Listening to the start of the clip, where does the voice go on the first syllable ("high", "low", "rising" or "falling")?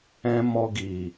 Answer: high